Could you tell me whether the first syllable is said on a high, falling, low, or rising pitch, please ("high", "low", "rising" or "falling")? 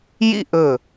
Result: falling